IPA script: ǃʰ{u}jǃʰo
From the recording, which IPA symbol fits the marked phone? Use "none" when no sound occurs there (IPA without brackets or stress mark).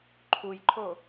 u